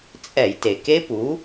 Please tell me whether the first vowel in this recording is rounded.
no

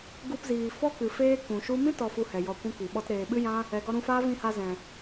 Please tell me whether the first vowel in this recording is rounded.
yes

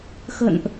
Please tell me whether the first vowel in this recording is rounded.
no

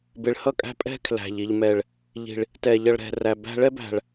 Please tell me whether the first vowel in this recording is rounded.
no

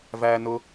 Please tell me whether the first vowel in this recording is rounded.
no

